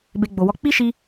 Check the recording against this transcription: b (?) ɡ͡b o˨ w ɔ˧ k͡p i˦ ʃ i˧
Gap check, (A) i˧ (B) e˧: B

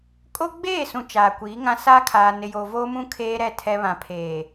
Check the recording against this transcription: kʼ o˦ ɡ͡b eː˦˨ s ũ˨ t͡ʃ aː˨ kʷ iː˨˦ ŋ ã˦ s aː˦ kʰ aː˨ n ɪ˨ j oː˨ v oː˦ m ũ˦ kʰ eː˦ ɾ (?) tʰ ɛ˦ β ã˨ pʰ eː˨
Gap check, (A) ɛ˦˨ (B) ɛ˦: A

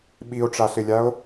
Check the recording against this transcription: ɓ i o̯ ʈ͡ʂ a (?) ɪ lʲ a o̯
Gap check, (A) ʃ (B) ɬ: B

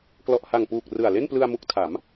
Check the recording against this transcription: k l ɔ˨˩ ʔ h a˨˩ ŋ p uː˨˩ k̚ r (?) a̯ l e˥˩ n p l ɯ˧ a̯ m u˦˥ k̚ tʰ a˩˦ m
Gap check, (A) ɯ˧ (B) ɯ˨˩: B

